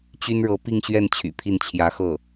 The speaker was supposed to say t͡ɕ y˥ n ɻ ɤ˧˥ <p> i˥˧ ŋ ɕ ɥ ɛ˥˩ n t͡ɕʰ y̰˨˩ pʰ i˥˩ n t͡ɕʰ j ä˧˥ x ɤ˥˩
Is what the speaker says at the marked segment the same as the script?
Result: yes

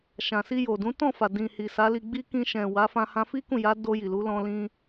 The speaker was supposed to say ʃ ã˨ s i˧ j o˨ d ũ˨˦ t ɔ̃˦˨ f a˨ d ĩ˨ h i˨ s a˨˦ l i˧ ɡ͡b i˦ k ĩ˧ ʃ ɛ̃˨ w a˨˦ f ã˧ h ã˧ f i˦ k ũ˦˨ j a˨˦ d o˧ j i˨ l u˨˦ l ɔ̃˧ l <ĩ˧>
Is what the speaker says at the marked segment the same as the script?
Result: yes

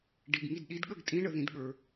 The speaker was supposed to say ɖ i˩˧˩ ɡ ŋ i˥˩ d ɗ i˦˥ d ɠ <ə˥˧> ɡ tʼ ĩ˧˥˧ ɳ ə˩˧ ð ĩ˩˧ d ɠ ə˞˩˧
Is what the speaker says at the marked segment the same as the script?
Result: yes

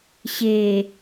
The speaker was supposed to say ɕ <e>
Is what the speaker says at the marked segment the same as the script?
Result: yes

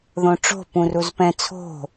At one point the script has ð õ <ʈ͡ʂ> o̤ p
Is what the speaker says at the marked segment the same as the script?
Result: yes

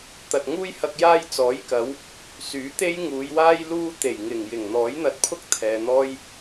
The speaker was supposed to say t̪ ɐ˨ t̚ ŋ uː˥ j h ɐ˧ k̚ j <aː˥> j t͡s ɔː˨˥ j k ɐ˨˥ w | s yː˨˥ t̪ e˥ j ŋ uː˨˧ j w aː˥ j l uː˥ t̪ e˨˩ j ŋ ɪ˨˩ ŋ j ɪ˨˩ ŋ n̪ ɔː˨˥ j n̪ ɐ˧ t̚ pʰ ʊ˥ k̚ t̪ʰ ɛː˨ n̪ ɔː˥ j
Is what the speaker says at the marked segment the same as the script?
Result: yes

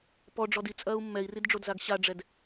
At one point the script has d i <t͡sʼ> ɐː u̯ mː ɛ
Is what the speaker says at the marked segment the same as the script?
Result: yes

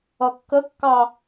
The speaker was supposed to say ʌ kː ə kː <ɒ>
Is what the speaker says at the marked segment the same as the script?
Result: no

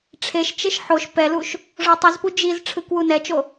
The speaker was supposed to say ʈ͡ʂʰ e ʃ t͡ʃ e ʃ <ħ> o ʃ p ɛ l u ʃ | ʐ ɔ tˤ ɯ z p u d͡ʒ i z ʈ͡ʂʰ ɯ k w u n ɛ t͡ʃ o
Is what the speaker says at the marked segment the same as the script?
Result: yes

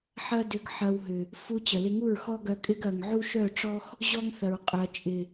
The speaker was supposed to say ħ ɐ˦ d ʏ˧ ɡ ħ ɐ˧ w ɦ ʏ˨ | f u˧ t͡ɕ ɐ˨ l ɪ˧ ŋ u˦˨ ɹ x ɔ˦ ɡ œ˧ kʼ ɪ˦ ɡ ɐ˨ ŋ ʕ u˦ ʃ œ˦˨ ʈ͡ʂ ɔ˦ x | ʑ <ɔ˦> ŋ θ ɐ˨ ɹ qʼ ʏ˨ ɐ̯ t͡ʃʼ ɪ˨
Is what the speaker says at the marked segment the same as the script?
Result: yes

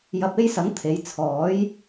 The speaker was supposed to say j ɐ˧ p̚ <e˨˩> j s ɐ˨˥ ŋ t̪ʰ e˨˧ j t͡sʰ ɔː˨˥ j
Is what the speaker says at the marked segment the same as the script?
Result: no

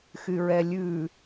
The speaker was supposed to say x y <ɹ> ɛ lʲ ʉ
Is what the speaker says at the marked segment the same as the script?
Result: yes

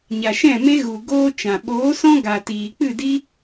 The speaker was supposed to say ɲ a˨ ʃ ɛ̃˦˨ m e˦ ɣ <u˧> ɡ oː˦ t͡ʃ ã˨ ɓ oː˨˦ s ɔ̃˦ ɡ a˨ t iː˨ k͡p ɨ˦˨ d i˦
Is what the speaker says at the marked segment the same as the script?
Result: no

